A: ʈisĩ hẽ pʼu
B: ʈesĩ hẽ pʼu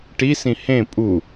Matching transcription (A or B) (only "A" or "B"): A